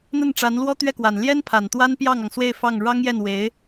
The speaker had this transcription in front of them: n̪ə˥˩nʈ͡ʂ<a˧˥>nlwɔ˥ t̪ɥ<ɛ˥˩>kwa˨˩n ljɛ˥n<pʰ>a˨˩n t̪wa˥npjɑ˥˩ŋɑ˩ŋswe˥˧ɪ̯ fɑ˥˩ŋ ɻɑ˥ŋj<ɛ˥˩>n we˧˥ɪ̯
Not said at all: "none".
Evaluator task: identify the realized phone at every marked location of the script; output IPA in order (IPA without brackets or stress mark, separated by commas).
a˧˥, ɛ˥˩, pʰ, ɛ˥˩